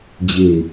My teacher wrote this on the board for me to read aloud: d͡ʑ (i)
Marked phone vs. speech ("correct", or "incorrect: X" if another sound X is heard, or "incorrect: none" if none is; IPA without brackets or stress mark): incorrect: e